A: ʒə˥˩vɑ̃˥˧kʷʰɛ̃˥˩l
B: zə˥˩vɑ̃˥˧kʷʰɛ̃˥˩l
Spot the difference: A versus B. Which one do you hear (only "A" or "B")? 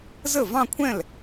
B